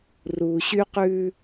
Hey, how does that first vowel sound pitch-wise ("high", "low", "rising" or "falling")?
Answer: low